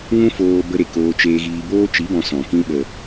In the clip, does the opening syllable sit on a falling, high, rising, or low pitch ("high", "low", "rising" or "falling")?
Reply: high